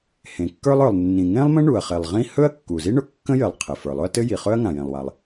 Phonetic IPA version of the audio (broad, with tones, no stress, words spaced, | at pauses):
hẽ˩kːə˞˥lˠ ə˞˩lˠnːĩ˩ŋẽ˥lˠmə̃˥ ɳu˩ɐ̯χe˩lˠʁĩ˥ hɵ˥ɐ̯ kːu˩zi˥ɳʊ˩ kːə̃˥jɘ˩lˠ qʰe˩fə˞˩lˠʊ˥ɐ̯ tɘ˥ji˩χɵ˥ɐ̯ ŋã˩jẽ˩lˠwa˩lˠ